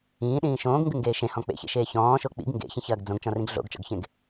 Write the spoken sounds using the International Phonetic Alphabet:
ĩː ɗ ĩː ʃ õː ɡ ŋ ɡ ɨ ŋ ɡ eː ʃ ẽ h ɔ̃ k͡p ḛ ç ḛ ʃ eː ç ɔ̃ː ʃ o k͡p ḭ ɡ ŋ ɡ ḛ ç ĩ ç ɐː ɡ d͡z õ ɡ t͡ʃ ɔ̃ r ĩ ɡ ɮ o̰ ɡ t͡ʃ ɔ̰ ɡ ç ẽ ɡ

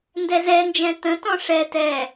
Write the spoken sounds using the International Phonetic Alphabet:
n d ɛ z ɛ n d͡ʒ ɛ̃ t ə̃ t ɔ̃ ʂ ɛ t ɛ

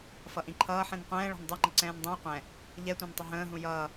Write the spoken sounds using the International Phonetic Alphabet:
f ʌ ʔ ĩ ǃʰ ʌː ħ ĩ n qʷ ɛ̃ː ɭ ɔ̤ n dˤ u ŋ͡ǃ ə ǀ ɛ̃ː n dˤ ĩ w qʷ ɛ̃ | ʎ ɛ tʷ ɛ̃ n tˤ ʊ ɦ ə̃ː ɦ ũ j ʌː

